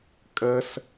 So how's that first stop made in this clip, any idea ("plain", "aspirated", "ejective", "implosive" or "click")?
ejective